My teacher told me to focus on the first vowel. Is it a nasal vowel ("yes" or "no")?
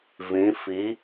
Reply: yes